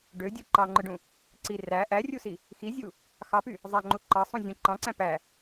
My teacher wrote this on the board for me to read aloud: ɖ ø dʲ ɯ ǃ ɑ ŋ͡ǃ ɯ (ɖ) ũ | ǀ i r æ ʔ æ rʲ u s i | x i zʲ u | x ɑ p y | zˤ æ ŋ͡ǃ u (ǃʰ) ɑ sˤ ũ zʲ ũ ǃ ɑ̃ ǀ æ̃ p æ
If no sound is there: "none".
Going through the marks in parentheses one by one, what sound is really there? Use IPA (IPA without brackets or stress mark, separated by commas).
ɖ, ǃ